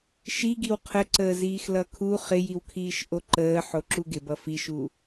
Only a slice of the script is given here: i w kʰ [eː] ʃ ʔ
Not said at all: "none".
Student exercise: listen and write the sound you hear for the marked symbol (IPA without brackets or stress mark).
iː